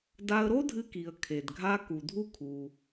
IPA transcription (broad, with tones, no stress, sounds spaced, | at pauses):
d a˧ ə̯ ɾ o˥ dʱ ɨ˧ k i˩ ə̯ kʰ e˩ d ɡʱ a˧ k u˩ dʱ u˥ kʰ u˩